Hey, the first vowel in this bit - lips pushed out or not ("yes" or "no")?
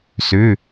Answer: yes